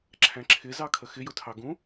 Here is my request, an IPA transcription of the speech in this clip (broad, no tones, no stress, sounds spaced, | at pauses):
ǁʰ æ̃ ǁʰ ɪ z ɑ kʰ ə x ɪ j ʊ tʰ ɑ ɡ ũ